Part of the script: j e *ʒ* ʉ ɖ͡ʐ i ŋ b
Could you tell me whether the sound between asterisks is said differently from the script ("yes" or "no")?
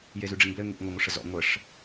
yes